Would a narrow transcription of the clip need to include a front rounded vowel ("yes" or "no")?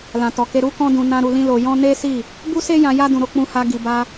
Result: no